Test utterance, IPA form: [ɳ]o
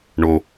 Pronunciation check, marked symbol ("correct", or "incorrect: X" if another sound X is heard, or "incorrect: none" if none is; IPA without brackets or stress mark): correct